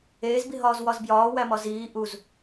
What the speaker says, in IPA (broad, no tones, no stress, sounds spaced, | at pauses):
eː z b i ɦ ɒː z w ɒ z b j ɒː w æ m ɒ z iː ʔ u z